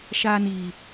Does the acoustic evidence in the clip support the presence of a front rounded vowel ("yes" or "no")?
no